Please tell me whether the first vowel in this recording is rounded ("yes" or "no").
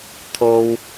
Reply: yes